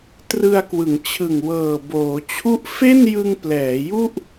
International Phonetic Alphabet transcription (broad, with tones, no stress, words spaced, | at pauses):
trɯ˧a̯kwɯ˩˦ŋt͡ɕʰɯ˨˩ŋ wɤː˨˩boː˩˦ t͡ɕʰu˦˥ʔfe˥˩njɯ˧ŋplɛː˩˦ ju˥˩ʔ